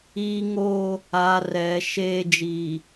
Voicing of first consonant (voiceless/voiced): voiced